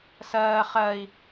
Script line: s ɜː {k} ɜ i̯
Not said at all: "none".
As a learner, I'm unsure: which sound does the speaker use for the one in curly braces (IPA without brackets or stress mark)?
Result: χ